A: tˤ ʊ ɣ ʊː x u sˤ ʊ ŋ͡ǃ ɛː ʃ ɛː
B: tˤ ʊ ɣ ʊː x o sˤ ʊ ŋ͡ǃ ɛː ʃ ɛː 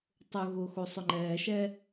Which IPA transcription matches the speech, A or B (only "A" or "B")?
B